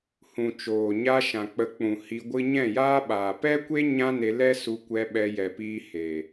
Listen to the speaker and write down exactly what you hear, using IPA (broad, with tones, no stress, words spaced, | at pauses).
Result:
hũ˨t͡ʃoː˨ɲa˧ ʃã˨k͡pə˨˦k͡pũ˨ hi˧ɡʷɨ˦ ɲɛ̃˦˨jaː˦ɓaː˨ pɛ˦kʷe˦ ɲã˦ne˧ lɛ˦su˧ kʷɛ˧ ɓɛ˧jɛ˨piː˧ he˨